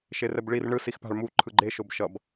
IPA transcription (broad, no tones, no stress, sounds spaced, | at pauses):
ʃ e r ɛ b ɭ i r ɳ ɯ s i x p a̤ ɭ m u ǃʰ ɯ ɡ͡ǃ e ʃ o b ʃ ʌ b